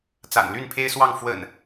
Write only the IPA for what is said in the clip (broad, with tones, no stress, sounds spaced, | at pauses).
t͡s a̰˨˩ n l y˥˨ n pʰ e˦ ɪ̯ s w ɑ˥˨ ŋ f w ə̰˨˩ n